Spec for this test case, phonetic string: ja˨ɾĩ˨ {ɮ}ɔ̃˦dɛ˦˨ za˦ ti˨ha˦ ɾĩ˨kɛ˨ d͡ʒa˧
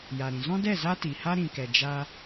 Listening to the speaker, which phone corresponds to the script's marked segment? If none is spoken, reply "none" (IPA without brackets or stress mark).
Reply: z